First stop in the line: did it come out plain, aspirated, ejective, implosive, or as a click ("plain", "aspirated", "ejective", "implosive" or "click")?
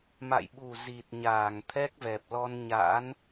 implosive